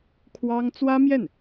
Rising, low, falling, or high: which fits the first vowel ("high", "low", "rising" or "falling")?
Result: high